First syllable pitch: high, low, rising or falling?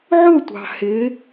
falling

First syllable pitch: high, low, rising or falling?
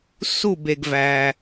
falling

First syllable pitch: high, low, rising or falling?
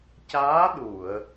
rising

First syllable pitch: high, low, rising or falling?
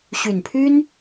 low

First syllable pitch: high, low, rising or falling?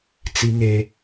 high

